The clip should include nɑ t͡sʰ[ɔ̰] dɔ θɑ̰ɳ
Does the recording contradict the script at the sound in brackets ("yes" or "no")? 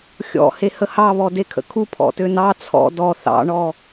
no